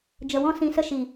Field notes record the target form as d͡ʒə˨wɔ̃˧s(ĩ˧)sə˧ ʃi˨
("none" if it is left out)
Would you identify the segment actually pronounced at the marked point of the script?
ĩ˨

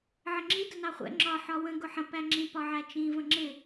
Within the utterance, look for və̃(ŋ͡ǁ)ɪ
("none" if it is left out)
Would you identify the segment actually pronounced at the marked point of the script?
ŋ͡ǁ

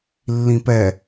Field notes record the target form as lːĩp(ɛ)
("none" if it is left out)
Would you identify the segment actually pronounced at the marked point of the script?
ɛ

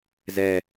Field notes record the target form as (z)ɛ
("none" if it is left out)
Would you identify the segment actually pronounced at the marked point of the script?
z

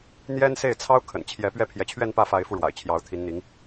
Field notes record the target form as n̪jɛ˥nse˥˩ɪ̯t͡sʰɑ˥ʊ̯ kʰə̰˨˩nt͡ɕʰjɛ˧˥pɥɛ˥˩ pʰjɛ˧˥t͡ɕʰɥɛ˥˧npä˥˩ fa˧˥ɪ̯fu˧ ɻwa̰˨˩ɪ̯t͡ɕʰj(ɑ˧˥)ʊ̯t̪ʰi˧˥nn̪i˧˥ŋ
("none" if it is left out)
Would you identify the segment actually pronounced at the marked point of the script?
ɑ˧˥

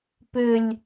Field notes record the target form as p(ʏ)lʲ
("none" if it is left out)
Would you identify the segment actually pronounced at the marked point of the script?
ʏ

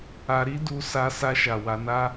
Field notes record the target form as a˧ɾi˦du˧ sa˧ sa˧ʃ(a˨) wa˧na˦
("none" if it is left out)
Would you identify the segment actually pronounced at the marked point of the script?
a˨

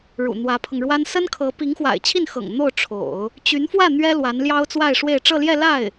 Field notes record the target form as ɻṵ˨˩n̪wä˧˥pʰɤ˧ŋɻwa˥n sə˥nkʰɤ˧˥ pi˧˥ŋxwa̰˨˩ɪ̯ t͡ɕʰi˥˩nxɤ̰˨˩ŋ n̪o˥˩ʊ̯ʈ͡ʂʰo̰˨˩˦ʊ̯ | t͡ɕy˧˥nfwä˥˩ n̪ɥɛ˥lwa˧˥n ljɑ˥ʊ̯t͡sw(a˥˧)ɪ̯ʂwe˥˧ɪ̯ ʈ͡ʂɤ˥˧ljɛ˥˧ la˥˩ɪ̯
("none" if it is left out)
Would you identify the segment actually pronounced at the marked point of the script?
a˥˧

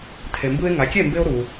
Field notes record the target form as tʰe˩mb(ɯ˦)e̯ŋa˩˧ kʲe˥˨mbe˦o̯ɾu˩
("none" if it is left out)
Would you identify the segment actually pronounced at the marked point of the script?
ɯ˦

